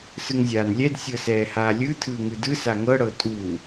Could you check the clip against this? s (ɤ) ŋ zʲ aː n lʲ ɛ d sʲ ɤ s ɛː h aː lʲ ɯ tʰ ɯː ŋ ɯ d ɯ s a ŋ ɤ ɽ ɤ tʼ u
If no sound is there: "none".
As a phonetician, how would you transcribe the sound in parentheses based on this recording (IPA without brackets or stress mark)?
ɯ